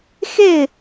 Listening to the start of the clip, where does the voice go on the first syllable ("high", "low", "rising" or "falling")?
falling